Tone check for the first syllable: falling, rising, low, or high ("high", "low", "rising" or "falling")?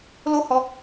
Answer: high